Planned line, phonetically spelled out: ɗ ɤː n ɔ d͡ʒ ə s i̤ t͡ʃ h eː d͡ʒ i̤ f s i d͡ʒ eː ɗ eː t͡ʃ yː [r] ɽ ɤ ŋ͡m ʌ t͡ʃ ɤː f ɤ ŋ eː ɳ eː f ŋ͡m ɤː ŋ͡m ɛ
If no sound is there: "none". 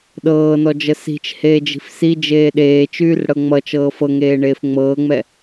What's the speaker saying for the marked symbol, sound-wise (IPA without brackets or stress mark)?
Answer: r